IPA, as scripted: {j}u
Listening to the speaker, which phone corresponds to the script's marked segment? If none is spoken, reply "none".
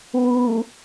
w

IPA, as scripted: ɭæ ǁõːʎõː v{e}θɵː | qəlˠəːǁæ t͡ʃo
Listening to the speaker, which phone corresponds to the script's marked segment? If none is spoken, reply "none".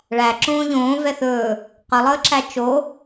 ɛ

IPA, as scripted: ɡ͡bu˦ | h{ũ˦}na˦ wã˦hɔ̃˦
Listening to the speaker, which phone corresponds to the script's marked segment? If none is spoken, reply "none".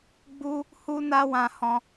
u˦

